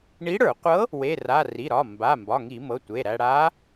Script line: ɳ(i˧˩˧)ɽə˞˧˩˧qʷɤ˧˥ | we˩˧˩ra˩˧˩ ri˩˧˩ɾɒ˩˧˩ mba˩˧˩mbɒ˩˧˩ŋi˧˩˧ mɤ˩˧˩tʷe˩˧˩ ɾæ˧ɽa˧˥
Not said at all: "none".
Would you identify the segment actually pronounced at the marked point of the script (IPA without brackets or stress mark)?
i˧˥